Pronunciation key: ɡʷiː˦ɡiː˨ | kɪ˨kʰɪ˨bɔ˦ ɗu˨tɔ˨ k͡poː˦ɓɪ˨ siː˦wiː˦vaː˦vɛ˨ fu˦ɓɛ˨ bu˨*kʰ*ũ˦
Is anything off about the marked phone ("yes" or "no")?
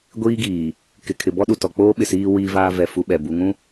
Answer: yes